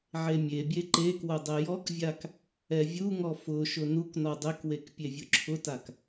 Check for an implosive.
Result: absent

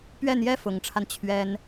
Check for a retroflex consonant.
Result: present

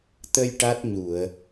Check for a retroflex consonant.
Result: present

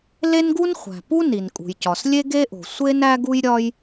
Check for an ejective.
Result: present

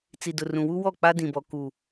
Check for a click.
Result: absent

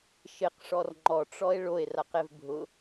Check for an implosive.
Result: absent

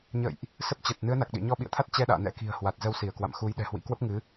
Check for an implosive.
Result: present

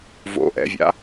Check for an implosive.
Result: absent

